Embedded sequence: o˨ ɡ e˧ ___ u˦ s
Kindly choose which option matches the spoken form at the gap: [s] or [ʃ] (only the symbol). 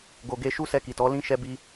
ʃ